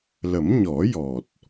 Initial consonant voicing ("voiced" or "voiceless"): voiced